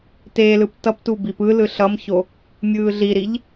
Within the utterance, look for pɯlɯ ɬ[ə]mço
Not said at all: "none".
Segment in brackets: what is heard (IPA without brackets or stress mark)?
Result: ʌ